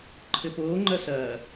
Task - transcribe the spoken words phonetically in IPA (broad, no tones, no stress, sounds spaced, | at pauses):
ǃʰ ɘ p oː ŋ͡ǃ ɐ s ɐː